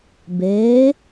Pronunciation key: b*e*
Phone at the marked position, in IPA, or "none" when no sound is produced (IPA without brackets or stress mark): eː